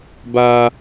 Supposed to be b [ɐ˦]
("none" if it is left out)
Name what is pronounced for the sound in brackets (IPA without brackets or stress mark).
a˦